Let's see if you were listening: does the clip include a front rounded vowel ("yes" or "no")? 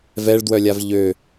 yes